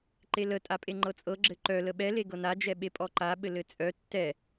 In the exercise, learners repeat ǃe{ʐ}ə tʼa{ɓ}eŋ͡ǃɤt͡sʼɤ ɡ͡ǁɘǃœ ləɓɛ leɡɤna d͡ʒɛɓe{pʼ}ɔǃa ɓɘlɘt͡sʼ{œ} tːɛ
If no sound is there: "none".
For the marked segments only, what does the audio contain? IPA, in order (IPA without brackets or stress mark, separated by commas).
l, pʼ, pʼ, œ